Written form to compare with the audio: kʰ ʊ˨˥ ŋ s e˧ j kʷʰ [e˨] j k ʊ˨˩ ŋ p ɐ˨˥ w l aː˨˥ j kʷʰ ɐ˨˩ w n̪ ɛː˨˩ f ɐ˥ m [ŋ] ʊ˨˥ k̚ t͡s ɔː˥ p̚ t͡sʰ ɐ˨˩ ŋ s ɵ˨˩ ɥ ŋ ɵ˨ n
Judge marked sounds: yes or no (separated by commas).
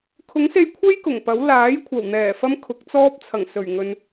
no, no